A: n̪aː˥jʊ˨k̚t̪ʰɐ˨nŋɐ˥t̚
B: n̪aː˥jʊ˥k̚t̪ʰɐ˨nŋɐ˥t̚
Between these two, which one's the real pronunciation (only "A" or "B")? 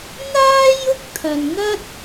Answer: B